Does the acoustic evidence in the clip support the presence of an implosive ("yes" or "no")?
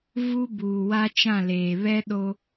yes